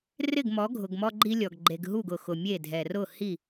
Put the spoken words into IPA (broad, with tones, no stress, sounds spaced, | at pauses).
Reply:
r ɪ˦˨ ɡ m ɔ˨˦ ɡʱ ʊ˨ ɡ m ɔ˦ ɡ͡ǃ i˦ lʲ ɔ˨ ɡ ɡ͡ǃ e˨ ɡ ɦ u˦˨ ɡ ʊ˨ x ʊ˨ mʲ e˦˨ dʱ ɛ˨ r ʊ˦˨ h i˦˨